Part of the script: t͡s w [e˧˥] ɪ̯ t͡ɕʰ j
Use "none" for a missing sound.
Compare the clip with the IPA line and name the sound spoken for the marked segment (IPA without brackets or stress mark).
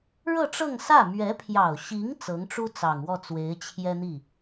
e˧˥